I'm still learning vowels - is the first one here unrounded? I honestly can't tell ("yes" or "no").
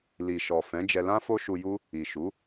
yes